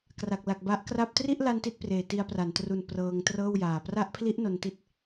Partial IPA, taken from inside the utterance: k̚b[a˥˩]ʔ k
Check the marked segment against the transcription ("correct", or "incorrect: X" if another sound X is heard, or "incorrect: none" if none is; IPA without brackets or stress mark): incorrect: a˦˥